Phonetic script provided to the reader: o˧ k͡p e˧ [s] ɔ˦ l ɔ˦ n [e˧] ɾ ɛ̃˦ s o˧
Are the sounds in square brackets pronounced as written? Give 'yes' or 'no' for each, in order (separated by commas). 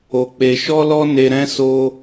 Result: no, yes